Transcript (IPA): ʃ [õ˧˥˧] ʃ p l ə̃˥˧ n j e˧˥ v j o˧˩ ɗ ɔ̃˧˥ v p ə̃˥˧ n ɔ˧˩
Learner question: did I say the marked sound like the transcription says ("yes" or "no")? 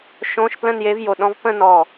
yes